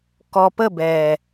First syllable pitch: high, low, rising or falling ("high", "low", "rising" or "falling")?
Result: low